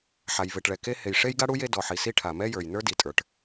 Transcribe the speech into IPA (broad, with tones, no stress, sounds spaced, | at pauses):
ħ a˩ j v e˩ ʈ ɭ ɛ˩ k e˥ h e˩ j ʂ e˥ j ɡ a˥ ɽ u˥ j e˥ d ɔ˩ ħ i˩ s i˥ ʈʰ a˩ m ɛ˥ j ə˞˩ j n ə˞˥ d i˩ tʼ ə˞˩ ʈ